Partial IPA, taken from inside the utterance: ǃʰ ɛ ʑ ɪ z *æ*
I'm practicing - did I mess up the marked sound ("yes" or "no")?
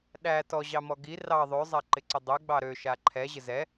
yes